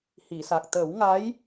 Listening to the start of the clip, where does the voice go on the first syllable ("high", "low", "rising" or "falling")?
low